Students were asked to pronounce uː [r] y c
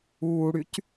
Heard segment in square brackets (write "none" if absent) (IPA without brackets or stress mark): ɽ